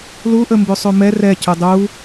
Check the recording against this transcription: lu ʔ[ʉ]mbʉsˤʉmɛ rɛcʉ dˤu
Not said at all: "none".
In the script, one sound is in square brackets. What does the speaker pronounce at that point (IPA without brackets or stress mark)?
ə